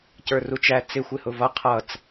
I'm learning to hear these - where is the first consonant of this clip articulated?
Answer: palate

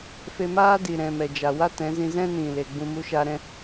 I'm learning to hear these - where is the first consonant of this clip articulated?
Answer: lips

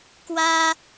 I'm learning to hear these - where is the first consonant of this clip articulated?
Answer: velum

